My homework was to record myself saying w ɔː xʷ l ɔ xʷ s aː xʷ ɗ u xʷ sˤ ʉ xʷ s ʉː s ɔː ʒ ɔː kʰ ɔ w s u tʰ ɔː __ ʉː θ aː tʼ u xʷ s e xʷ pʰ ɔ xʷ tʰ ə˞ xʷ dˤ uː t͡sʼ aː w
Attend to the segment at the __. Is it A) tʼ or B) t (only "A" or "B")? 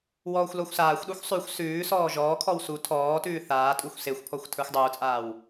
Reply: B